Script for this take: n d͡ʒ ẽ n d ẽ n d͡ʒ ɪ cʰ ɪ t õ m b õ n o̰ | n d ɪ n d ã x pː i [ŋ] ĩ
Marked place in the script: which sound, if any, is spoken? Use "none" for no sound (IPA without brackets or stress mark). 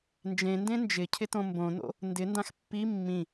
mː